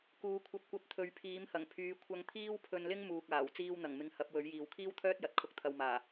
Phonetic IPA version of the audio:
k uː˨˧ kʷʰ ɐ˧ p̚ kʷ ɐ˧ p̚ t̪ʰ ɵ˨˧ ɥ pʰ iː˨˥ m h ɐ˨˩ ŋ pʰ yː˨˧ kʷʰ ɐ˧ ŋ t̪ʰ iː˥ w pʰ ɵ˧ n l ɪ˥ ŋ m uː˨ k̚ aː˨˩ w t͡s iː˧ w n̪ ɐ˨˩ ŋ m ɪ˨˧ ŋ h ɐ˨˥ p̚ w ɵ˨˥ ɥ j iː˨ w kʰ iː˥ w t̪ʰ œː˥ t̚ j ɐ˨ t̚ kʰ ʊ˧ k̚ t̪ʰ ɐ˨ w m aː˨˩

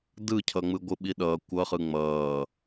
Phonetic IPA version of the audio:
d ɯ cʰ ʌ ŋ͡m ɯ ɡʷ ɯ ɓ i ɗ ʌː kʷ ʌ χ ɯ ŋ͡m ʌː

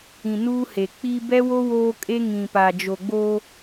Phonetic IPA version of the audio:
ĩ˨ n uː˦ h e˨ k͡p i˦ b ɛ˦ w o˦ w oː˦ kʼ e˦ ŋ ĩ˨ p a˨ d͡ʒ o˨ ɡ͡b oː˦

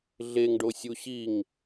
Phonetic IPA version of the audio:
ɮ e ŋ ɖ o sʲ u ɕ i ŋ

